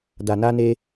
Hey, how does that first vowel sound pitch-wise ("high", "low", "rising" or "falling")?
low